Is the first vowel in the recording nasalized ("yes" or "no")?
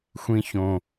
yes